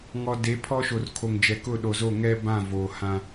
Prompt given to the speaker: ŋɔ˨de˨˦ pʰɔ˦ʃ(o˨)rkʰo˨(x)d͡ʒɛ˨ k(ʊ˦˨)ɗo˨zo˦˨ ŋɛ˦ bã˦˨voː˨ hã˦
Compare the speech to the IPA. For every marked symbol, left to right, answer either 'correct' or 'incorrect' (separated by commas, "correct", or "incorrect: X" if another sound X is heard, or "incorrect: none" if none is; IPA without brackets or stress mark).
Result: correct, incorrect: ŋ, correct